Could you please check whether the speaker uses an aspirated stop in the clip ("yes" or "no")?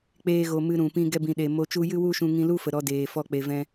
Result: no